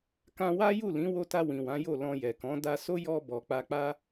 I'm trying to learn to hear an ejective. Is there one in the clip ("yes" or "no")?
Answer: no